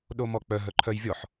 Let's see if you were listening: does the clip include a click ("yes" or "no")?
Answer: yes